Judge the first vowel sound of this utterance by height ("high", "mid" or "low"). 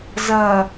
low